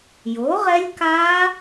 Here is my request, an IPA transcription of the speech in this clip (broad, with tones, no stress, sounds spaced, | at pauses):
j o˩˥ ʁ ɛ˦˥ lʲ k aː˦˥